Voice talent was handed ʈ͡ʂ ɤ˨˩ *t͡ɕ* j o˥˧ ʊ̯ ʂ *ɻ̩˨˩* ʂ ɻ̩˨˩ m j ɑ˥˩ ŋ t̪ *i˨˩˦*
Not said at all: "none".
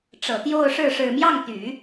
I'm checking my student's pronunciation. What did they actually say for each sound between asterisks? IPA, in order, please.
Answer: t̪, ɻ̩˥˩, y˨˩˦

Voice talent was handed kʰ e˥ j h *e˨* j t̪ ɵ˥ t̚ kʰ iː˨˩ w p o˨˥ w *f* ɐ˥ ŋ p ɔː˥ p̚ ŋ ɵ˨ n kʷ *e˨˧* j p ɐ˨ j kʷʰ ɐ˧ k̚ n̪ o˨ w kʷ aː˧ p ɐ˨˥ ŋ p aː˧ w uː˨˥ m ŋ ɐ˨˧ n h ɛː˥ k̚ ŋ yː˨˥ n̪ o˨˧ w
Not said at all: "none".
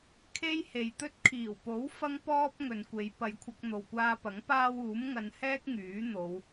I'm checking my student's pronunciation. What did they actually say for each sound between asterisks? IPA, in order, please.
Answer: e˨, f, e˨˧

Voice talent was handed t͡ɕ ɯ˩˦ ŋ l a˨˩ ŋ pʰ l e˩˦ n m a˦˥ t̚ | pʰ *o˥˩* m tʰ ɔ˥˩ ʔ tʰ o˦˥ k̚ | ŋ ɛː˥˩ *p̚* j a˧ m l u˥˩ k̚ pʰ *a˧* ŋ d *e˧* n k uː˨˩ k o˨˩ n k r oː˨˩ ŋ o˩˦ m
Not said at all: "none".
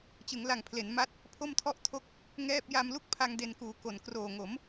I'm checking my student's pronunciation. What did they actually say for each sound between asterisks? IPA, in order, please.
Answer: o˥˩, p̚, a˧, e˧

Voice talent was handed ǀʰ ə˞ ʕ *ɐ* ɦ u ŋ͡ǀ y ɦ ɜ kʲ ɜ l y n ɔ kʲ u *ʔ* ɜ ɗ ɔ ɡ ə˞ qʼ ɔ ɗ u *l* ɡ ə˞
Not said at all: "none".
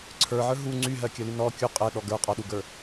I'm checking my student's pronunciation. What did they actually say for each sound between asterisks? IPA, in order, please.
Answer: ə˞, qʼ, none

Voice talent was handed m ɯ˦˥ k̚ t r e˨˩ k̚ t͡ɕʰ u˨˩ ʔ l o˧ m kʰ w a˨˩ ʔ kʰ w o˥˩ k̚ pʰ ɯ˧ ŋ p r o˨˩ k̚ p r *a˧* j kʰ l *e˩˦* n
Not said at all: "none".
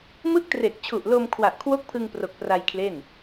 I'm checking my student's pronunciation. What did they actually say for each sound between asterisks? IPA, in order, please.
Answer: a˧, e˥˩

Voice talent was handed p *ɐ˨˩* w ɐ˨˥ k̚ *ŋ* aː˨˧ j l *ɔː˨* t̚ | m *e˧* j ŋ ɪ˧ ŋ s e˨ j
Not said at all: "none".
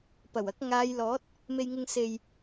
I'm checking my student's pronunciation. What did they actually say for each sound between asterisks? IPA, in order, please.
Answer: ɐ˨˩, ŋ, ɔː˨˥, e˧

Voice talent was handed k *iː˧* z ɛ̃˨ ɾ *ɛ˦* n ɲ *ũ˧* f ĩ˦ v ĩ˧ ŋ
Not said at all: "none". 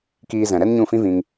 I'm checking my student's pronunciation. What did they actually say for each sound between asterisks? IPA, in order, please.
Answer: iː˧, ɛ˦, ũ˦˨

